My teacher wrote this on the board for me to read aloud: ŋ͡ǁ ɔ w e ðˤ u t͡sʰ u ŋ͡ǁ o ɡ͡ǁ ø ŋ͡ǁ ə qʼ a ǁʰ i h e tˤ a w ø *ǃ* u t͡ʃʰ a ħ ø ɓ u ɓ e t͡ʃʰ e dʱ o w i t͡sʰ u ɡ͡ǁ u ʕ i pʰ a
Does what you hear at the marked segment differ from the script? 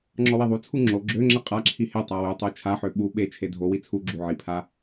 yes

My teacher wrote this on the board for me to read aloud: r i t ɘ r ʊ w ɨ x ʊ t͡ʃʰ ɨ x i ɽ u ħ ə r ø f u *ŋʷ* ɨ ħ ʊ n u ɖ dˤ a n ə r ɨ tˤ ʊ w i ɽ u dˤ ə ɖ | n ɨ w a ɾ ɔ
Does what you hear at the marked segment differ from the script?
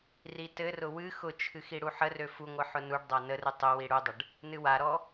no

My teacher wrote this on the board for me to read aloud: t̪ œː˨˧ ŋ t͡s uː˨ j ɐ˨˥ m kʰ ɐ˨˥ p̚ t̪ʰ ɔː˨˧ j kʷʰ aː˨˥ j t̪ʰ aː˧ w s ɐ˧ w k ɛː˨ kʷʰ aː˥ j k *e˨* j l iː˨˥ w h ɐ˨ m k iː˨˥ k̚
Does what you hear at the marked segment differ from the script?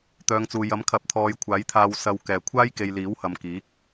no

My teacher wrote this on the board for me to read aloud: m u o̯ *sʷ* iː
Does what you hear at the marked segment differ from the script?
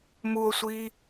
no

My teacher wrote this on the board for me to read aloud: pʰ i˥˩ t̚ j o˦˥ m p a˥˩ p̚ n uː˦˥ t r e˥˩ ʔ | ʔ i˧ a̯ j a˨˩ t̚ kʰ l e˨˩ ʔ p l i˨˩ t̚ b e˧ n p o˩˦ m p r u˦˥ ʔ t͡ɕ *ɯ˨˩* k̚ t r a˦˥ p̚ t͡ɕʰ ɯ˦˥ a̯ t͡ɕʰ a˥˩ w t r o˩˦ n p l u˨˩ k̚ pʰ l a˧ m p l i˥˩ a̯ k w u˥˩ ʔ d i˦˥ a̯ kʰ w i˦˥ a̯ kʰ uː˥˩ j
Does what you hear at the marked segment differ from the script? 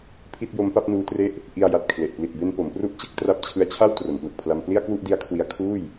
yes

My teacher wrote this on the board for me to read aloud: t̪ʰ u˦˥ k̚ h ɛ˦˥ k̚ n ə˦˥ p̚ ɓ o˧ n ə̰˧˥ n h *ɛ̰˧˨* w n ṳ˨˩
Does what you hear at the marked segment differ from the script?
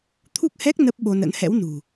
yes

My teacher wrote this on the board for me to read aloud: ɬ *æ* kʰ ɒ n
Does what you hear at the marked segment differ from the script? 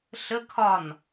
yes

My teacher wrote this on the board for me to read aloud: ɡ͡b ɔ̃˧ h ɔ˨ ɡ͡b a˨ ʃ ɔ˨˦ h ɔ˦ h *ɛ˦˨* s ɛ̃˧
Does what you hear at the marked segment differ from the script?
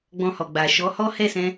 no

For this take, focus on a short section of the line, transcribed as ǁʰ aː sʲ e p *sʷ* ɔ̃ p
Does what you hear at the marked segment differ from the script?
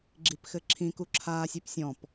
yes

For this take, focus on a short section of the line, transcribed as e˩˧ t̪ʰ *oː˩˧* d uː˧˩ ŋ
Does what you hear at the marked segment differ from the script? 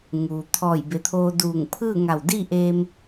yes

